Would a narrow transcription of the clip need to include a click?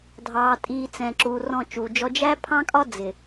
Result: yes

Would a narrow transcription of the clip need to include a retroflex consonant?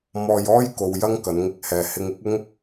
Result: no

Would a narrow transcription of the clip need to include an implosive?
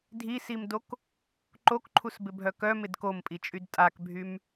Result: no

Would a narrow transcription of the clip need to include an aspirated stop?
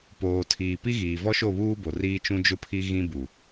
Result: yes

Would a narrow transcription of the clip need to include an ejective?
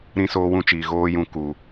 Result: no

